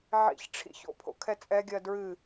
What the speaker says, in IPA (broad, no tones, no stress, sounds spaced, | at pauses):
ʕ ḭ ç ʈ͡ʂʰ ḭ ç o̰ pʰ o̰ kʰ ɛ t͡sʼ ɛ ɡʲ ɜ d ɹ ɨ